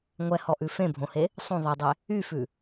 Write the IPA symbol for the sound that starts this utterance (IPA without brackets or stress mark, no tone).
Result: ŋʷ